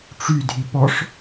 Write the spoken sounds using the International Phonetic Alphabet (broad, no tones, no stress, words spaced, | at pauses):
ʈ͡ʂydʱi pɔʂ